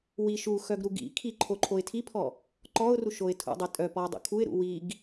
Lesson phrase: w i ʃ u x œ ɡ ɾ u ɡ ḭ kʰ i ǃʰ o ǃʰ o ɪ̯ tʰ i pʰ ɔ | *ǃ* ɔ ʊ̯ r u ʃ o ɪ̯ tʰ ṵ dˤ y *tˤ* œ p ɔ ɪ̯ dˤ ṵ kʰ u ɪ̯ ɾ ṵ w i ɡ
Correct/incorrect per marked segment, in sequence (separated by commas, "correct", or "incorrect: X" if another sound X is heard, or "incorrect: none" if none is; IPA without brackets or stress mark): correct, incorrect: tʼ